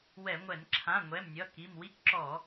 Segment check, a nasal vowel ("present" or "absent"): present